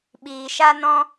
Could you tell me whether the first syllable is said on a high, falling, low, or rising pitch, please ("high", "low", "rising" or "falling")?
low